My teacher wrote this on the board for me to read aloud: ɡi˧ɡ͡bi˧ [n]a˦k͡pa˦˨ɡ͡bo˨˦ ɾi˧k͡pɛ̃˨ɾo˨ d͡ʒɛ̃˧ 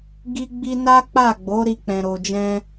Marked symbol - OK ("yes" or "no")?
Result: yes